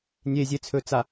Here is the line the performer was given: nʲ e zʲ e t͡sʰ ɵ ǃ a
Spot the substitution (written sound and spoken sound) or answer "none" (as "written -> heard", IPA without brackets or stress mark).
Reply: ǃ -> t͡s